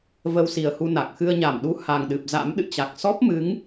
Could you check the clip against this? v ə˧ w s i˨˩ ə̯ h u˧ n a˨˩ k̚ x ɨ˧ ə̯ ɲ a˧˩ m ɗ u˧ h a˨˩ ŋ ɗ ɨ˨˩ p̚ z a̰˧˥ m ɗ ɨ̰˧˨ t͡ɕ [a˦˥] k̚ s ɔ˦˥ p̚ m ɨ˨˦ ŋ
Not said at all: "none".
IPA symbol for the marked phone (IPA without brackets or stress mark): a˨˩